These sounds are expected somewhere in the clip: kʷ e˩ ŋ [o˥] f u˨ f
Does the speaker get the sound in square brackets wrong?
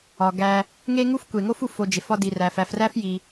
no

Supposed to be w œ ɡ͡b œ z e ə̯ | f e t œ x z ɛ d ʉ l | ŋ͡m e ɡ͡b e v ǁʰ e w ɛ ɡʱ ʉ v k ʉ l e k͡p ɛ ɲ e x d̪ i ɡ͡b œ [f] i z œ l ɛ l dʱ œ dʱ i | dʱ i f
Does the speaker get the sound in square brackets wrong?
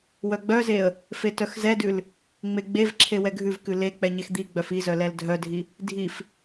no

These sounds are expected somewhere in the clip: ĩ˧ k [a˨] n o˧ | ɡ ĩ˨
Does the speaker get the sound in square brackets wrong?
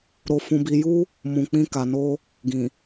no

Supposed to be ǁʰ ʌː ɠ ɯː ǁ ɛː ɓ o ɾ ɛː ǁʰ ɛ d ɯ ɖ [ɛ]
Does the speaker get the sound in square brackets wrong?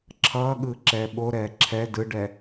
no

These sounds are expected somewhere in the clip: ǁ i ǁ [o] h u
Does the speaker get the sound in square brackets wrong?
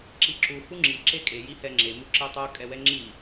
yes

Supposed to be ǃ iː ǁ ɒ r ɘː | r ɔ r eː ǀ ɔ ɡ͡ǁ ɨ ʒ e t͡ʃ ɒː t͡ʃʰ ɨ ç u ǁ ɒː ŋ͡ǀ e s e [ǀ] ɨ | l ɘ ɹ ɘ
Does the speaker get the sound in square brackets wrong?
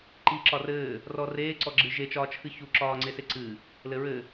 no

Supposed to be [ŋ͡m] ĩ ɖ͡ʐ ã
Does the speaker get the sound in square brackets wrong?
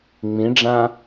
no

